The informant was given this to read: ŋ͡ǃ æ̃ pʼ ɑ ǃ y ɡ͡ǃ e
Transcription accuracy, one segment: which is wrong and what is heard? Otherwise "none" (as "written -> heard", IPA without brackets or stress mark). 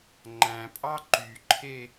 ɡ͡ǃ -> ǃʰ